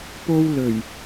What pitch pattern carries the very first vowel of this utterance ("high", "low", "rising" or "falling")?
high